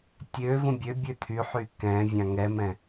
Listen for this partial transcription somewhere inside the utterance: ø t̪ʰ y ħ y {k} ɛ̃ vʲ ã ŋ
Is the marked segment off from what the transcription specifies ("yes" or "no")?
no